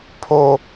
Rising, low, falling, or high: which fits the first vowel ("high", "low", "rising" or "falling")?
low